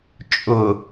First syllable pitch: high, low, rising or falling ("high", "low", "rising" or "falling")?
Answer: low